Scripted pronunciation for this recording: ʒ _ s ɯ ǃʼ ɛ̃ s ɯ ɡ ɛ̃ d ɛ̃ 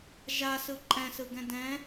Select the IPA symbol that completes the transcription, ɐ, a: a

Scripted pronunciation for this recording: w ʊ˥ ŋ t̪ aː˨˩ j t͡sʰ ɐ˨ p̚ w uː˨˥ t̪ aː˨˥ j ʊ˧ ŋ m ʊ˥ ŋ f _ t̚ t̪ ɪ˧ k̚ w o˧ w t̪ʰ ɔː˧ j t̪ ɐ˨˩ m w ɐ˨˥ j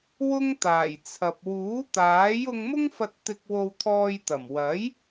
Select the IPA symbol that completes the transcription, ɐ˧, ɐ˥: ɐ˧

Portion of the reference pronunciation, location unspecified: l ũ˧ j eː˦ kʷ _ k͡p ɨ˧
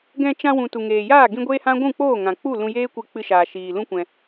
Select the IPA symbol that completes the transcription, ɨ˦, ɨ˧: ɨ˧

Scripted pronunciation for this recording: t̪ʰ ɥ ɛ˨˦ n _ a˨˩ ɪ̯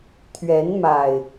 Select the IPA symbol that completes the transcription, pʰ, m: m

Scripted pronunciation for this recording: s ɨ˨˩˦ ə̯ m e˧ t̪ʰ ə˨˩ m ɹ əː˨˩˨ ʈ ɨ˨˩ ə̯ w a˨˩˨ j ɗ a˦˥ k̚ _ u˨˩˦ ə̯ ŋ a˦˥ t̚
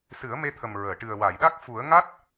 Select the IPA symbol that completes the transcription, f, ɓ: f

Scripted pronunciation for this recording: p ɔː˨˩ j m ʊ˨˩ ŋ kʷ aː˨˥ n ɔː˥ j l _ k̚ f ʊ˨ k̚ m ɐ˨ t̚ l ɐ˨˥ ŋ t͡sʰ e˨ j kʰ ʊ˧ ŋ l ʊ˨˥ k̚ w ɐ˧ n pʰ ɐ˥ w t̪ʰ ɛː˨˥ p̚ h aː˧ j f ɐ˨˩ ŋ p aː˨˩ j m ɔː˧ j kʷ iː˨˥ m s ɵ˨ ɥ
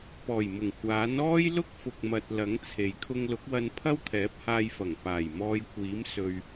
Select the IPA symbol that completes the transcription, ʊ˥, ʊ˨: ʊ˥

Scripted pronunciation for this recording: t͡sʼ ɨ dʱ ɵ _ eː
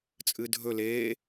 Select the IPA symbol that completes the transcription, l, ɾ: l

